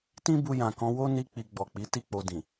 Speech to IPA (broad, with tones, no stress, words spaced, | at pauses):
tĩ˦bu˧ jã˨kɔ̃˧wo˦ ni˧k͡pi˨ ɡ͡bɔ˨k͡pi˨˦ ti˦k͡po˧dĩ˨